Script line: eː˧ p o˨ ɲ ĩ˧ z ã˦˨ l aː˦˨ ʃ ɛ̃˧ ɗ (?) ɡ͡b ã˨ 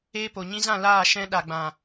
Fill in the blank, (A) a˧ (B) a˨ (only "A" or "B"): B